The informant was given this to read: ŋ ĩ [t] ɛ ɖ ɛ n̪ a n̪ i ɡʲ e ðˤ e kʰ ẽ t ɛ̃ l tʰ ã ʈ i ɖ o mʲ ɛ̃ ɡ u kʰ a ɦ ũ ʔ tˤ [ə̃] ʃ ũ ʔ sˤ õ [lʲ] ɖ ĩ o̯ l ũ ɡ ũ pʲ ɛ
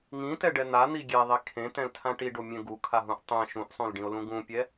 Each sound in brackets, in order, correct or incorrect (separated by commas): correct, incorrect, incorrect